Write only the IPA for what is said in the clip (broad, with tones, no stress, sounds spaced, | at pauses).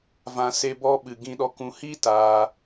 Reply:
v ã˧ s e˦ b ɔ˦ ɓ ɨ˧ ɡ ĩ˧ ɗ ɔ˧ k ũ˧ h i˦ t aː˧